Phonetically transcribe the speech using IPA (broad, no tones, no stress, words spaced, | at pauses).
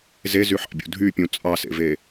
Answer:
zezyħɑ̰bʲṵ dʱypʲũ t͡sʼɑsḛve